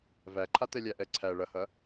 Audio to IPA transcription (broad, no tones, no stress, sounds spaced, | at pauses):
v æ ǃʰ a t ɛ lʲ æ ʔ ɛ ǀʰ æ ɭ ɐ h ɐ